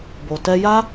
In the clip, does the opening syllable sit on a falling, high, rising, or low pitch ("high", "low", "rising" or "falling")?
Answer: low